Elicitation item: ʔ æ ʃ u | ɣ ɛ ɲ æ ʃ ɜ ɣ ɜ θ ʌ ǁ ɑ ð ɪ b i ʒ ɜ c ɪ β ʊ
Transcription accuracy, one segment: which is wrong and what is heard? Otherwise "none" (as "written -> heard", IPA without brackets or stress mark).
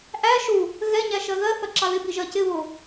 none